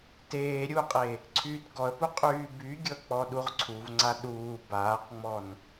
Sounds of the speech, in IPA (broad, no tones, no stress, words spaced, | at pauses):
teː ɾʲuqʼe | ǀʰyːtɡɔə̯pu qʼyːbyɡʲɤ k͡pɔɗuʁǀʰuvŋ͡ǀa ɗuː baːqŋ͡mɔn